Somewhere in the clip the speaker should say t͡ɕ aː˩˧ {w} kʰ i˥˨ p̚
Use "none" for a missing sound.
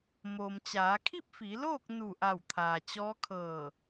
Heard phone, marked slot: none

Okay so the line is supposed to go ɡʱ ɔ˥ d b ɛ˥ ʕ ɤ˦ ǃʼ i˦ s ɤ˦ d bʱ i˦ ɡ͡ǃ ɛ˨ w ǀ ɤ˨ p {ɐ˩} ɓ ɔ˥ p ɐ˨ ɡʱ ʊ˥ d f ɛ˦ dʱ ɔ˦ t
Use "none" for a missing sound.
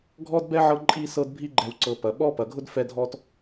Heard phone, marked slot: ɐ˩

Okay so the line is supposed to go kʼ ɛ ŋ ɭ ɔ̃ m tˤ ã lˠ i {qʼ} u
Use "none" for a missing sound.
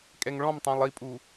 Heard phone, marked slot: pʼ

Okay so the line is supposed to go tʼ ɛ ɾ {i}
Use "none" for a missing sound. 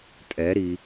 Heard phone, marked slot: i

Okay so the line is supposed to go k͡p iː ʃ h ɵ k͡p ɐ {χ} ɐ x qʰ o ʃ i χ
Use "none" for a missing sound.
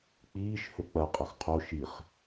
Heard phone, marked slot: qʼ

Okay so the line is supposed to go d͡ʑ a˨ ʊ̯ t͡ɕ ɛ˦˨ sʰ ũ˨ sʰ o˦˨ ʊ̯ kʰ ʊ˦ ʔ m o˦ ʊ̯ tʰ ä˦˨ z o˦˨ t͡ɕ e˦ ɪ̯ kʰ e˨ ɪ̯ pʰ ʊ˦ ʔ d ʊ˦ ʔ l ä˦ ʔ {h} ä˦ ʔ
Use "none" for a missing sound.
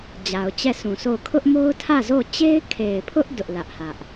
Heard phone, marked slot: h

